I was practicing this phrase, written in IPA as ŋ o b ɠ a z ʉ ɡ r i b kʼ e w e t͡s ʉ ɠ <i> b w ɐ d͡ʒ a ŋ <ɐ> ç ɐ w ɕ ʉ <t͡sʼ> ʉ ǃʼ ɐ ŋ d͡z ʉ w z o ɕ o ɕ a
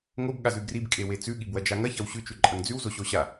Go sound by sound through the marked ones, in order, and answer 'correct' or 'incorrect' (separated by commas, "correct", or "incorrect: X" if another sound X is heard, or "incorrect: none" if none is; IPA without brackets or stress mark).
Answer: correct, correct, incorrect: t͡ʃ